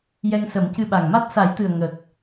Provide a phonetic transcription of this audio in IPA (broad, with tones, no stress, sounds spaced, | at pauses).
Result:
j ɛ˧ ŋ s ə˨˩˦ m c ɨ˧ ɓ a˨˩ ŋ m a˦˥ t̚ s a˨˩˦ j t̪ ɨ˨˩ ə̯ ŋ ə˨˩ k̚